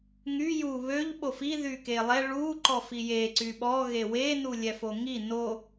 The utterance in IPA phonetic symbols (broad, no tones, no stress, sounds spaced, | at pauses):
ŋ y j u β ø ʎ ɓ o f i ð y k e lˠ ɛ ɭ u ǃ ɔ f i j e ǀ y ɓ ɔ ɣ e w e n u lʲ ɛ f o ŋ i n o